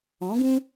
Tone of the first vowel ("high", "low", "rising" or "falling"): rising